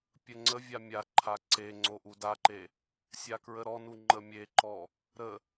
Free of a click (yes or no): no